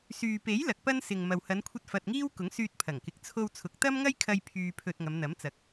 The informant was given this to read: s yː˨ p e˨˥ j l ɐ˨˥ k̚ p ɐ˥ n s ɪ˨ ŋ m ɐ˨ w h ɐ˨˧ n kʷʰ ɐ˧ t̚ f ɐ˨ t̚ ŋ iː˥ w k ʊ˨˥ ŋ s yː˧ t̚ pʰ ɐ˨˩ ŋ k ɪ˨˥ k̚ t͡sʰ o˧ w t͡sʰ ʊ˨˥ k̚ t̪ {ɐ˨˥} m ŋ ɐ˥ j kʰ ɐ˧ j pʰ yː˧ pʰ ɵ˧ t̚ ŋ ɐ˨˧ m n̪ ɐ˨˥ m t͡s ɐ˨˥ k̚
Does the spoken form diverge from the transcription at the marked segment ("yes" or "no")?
yes